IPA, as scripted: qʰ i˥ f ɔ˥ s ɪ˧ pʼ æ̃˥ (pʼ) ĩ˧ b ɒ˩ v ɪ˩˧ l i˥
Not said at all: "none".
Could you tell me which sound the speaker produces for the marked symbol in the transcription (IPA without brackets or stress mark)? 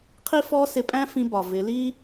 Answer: f